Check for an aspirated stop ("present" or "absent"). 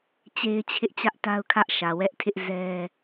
present